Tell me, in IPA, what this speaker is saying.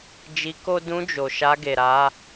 d͡ʒi˧ko˦ dũ˧d͡ʒo˨ ʃa˧ɡe˨ɾa˨˦

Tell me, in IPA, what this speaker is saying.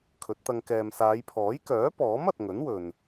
kʰɵ˨˥t̚t̪ɐ˧ŋ kɛː˨m saː˨˧jpʰɔː˨˥j kœː˨˥pɔː˨˥m ɐ˨t̚ŋɵ˨˥n wɵ˨n

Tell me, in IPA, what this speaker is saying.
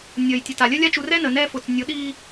nʲəː˨j tʲə˨ta˨lʲə˦lʲa˦ t͡ʃu˨rɛ˦ nə˨ nɛ˦ fʊ˨t͡snʲʊ˨˦ ɗiː˦

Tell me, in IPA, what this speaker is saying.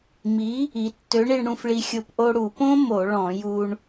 mi˨˥ | i˩˧tːø˨˥ɳi˧ɳ ɽũ˧fɭi˧xʲo˧p ʔo˧ɽu˧˩˧põ˦˥ mo˧˩˧ɭɔ̃˧˩˧ju˧ɳ

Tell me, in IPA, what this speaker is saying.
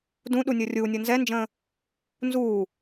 dũ ɗunʲɤrʲuːnʲɤ nzɛnd͡ʒə̃ː | nzuː

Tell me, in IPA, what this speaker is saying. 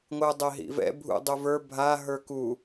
ŋʷɯdˤɛɦḭvɛ̰ bʱṵ dˤuvə˞ bʱa ɦə˞ku

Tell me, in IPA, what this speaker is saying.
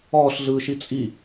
ɔːɬɮɯːʃi t͡sʼi

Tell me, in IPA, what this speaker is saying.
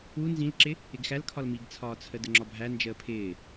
u nzĩlǁɪ | ɪɡxælkʰɒl miɡt͡sʰɒːt͡sʰə dəŋ͡ǁɒbʱæ nd͡ʒəːpʰɪː

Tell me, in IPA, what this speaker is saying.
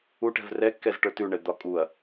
uʈɛ̤v rɛkːɛz ʈə˞tʉɳɛ d̪ɒkʼuɐ̯

